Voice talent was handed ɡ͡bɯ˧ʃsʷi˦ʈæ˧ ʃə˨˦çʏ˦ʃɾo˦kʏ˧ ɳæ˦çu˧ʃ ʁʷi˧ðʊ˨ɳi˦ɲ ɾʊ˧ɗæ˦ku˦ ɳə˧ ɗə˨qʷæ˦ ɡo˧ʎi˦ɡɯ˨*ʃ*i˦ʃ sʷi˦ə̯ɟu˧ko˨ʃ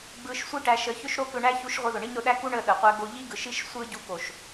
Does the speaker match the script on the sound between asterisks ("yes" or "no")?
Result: yes